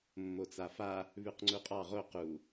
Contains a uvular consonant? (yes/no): yes